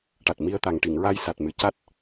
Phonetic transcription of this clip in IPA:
ʈ a˨˩ t̚ m i˧ ə̯ t̪ a˨˩ ŋ ʈ i˨˩˨ ŋ ɹ a˧ j s a˨˩ t̚ m ɨ˨˩ c a˦˥ t̚

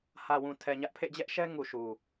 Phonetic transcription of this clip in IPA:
h ä˨ w ũ˨ tʰ ɛ˨ ɲ ä˦ ʔ pʰ ḛ˦˨ d͡ʑ ɛ˦ ʔ ʃ ɛ˦ ŋ u˨ ʃ u˨

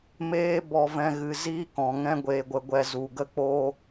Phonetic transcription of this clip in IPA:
m eː˦ b ɔ˧ v ɛ̃˧ ɣ ɨ˧ z iː˦ k ɔ̃˧ ŋ ɛ̃˦ ɡʷ eː˧ ɡʷ ə˧ ɡʷ ɛ˧ z u˧ ɡ ə˦ k͡p o˦

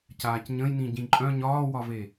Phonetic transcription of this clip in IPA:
c aː c ɲ ə̃ j n ĩ ɟ ĩ ǃʼ œ̃ ɲ ɒː w ɒ v e

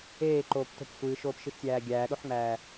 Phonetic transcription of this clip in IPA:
eː ǃ oː p t o̤ p sʷ ɨː ʃ oː p ʃ ɨ ʃ tʲ æː ɡʲ æː ɗ o ħ ŋ͡m æː

